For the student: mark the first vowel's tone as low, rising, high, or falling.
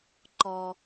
low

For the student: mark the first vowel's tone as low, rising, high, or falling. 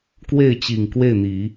falling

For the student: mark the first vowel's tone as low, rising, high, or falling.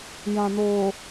low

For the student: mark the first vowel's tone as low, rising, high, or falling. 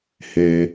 low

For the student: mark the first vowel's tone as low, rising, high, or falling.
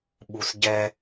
low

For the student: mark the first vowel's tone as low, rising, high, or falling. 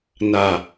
low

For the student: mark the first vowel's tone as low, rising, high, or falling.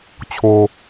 low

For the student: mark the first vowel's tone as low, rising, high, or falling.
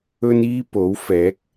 high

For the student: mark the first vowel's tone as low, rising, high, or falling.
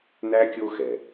high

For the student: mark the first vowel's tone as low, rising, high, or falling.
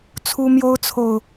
high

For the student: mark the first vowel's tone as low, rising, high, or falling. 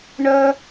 high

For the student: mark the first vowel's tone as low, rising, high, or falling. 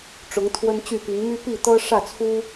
rising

